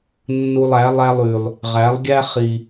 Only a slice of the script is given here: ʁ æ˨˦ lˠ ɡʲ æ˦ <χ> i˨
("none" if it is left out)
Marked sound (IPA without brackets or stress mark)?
χ